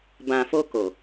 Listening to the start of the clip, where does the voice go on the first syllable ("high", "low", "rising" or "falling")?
low